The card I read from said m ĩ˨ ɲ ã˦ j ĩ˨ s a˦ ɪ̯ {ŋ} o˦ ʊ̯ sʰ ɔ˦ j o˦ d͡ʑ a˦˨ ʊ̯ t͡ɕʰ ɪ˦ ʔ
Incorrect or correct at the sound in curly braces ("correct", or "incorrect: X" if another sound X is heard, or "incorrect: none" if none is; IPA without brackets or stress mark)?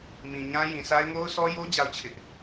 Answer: correct